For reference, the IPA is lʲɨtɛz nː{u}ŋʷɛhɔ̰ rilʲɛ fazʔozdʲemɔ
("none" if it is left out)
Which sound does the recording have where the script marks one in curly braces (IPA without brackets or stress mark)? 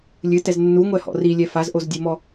u